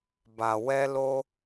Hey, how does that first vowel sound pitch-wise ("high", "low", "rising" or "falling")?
low